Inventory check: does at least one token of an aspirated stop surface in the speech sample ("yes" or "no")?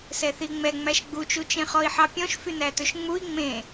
no